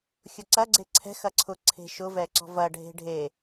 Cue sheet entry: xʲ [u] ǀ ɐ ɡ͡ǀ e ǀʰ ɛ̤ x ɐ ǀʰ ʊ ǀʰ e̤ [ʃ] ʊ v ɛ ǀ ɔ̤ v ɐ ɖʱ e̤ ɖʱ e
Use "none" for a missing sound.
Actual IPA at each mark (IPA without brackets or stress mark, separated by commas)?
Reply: ʊ, ʃ